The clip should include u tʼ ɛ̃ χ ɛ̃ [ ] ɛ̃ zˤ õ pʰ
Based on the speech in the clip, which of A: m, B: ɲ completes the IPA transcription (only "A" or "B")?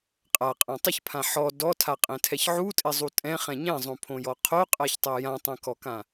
B